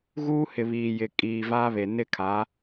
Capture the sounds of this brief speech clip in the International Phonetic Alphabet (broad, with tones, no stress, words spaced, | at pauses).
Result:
ɣuː˦hɪ˨βiː˨jɪ˨ kʼiː˨vaː˦βe˨ nɪ˦kʰa˨˦